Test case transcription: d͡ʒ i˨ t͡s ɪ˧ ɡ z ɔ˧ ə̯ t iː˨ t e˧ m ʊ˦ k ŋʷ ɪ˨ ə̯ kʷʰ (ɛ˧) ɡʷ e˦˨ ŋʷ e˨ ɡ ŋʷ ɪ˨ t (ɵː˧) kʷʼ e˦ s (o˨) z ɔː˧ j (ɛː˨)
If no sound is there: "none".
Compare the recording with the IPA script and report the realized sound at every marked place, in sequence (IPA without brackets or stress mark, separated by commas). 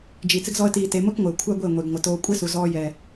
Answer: ɛ˦, oː˧, u˨, ɛː˨